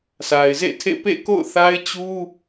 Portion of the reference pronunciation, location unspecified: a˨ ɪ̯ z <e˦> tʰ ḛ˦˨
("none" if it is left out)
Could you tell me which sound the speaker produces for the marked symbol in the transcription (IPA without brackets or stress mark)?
ḛ˦˨